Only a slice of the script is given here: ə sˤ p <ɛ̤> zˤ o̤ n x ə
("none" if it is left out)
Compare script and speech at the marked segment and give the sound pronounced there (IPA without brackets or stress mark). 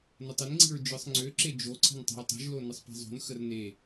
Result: e̤